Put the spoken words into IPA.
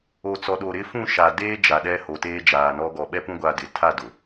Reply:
o˨t͡sɔ˨ɗo˨ ɾɪ˦ fũ˦˨ʃa˨ deː˦ d͡ʒa˨ɗɛ˦ ho˨teː˦d͡ʒaː˨nɔ˦ ɡɔ˨ɓɛ˦pũ˦ ɡʷa˦dɪ˨ tʰa˦˨ dʊ˨

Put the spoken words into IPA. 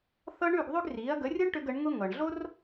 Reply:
θɤ˥ ɳʉ˥˩ɡ ðˤʉ˥ɡriː˩˥ɐ̯ ɡə˩˥rʲɤ˥ɳʈʏ˧ɡ ə˩˥ɳŋʊ˥ ŋɤ˩ɳɮo˥r

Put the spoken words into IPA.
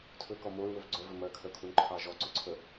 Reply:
tʰɵkɔ moɹwɵv ɡ͡ǀœvɵ mɜkʰœkʰunǃʰɑ ʒɔǀɵǀʰə

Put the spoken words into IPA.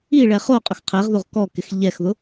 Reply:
iɭɛ χoqʼʊx qʰɛʁðoʁ kɔkɪx ʎɛxðʊ

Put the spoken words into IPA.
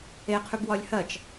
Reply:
eqʰʉb wɒlʲhɜt͡ʃ

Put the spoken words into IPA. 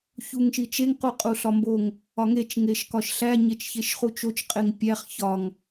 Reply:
çuŋʃit͡ʃeŋ quqʼuɬɒmboŋ | ɒŋet͡ʃ ŋeʃkɒʃɬæ ɲet͡ʃçeʃχut͡ʃot͡ʃ qʼeŋpʲæχ çɒŋ

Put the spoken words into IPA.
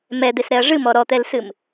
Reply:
mɛd̪esɾɛɐ̯ ʐɨmɔ ɾɔt̪ɛlsɨm

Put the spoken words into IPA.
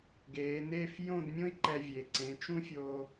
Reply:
ɡeː˩˧ neː˥˧f jõ˥˧dmʲõ˥i̯ ǃɛ˧ vʲe˩˧ ǀẽ˩˧t͡ʃũ˥fʲo˧

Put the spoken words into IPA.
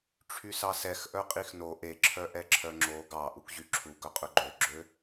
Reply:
ʈ͡ʂʰysɑsɛx ʔœqʼixno ʔeǁʰœ ʔɛǁʰœŋ͡ǁo ɡɑ ʔukʑyǁʰu ɡœqʼɵɡ͡ǃøɡ͡ǁø

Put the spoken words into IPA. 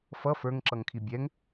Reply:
fʌ fə˞ŋǁʌŋkʰi bʲɛŋ

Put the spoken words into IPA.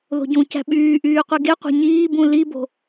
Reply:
ðo̤ɟũcæ̤ ɓyː ʔyːqʷiɡeqʷe̤ ɲiːbũ libo̤

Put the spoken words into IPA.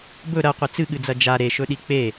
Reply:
bɵ ɾɐqʷi t͡sɨɠɨd͡zɐ d͡ʒa ɾeʃɵɗi k͡pe

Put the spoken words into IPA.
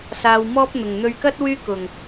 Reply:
saː˨wmɔː˥p̚n̪ʊ˨˩ŋ n̪ɵ˨ɥkɐ˥t̚ wyː˥kʊ˨˩ŋ

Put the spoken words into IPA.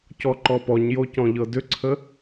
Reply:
cɔǃɔpɔɲjo cɔ̃ʎɤdʏǀʰə

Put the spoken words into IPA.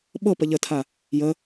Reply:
ɓɤpə ʎətʰa | jə

